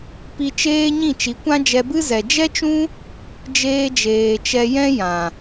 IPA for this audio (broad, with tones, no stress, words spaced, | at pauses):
pi˧t͡ʃeː˦ɲĩ˦˨ t͡ʃi˨˦kʷã˦d͡ʒɛ˧bɨ˦ zɛ˨d͡ʒɛ˦t͡ʃũ˦ | d͡ʒeː˧d͡ʒeː˨ t͡ʃɛ˧jɛ̃˦ jã˨